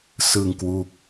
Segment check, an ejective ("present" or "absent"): absent